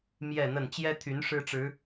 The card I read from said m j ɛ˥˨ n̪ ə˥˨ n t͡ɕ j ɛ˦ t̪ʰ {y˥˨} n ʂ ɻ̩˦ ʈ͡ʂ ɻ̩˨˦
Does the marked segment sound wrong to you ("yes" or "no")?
yes